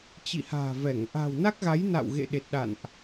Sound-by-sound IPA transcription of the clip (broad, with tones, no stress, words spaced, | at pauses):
t͡ɕḭ˧˨ha̤ː˨˩vɛ˧˩ŋ ʔa̤ː˨˩wna˦˥k̚ɣa˨˦j na̰˧˨wɣḛ˧˨ɗe˨˩t̚ɗa̰˧˨nʔ